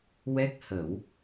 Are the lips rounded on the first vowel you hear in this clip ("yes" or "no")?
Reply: no